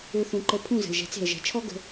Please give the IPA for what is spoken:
ø˧ θ ũ˨ ǃ ə˨˦ pʰ ũ˦˨ z ə̤˨ l ʒ ɛ̤˨˦ t͡s e̤˨ ə̯ ʒ ɛ̤˨ t͡ʃʰ ɔ˦ ɡ ə̤˦

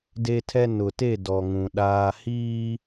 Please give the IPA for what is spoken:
d e˦ tʰ ɛ˦ n ʊ˨ t e˦˨ d ɔ˨ ŋ ũ˨ ɗ aː˨ h iː˦

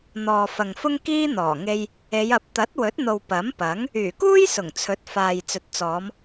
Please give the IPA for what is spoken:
n̪ ɔː˨ f ɐ˨ ŋ f ʊ˥ ŋ k iː˥ n̪ ɔː˨˩ ŋ e˧ j | e˨˧ j ɐ˨˥ p̚ t̪ ɐ˨˥ t̚ w ɵ˨˥ t̚ n̪ o˨ w p ɐ˨˥ m p ɐ˨˥ ŋ | yː˨˩ k uː˥ j s ʊ˨˩ ŋ t͡sʰ ɵ˨˥ t̚ f aː˨ j t͡s ɵ˨ t̚ t͡s ɔː˨˧ m

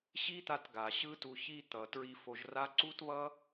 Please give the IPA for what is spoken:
ɕ i˦ t̪ a˧ t ɡ a˨ ɕ ɯ˦ t u˧ ç i˧ t̪ ʌ˨ t ɹ i˧ f o˧ ʒ r a˦ ǀ u˦ t β ʌ˦

